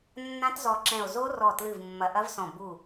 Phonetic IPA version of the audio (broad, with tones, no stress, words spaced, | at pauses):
nːã˦˥tzɔ˧˩ǁɛ̃˧˩o̯ zo˦˥rɔ˧˩tlɨ˧˩v mːɐ˧˩ʔɐ˦˥vsɔ̃˧˩ bu˧˩